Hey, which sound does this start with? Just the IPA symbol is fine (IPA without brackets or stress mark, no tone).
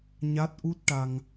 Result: ɲ